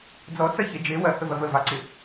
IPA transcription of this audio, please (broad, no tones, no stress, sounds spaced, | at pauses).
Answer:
d͡z ɔ t͡s ɐ ç e d͡ʒ e w ɐ h ɵ v ɐ v ə v ɑ ǀ ɪ